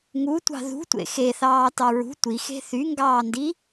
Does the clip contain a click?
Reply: no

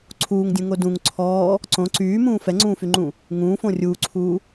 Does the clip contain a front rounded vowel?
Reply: yes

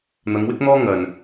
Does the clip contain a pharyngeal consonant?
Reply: no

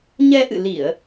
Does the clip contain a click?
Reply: no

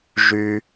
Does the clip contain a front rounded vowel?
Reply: yes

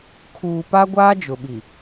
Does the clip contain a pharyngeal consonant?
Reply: no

